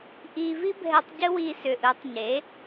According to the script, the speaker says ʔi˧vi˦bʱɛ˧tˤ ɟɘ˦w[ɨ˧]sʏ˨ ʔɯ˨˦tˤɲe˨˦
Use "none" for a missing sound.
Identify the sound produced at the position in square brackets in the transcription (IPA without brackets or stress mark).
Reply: i˧